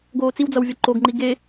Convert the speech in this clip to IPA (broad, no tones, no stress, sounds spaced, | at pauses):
ɡ oː t͡s i w d͡z ʌ w vʲ ʌ ǃ o ɡ ŋ͡ǃ i ɡ e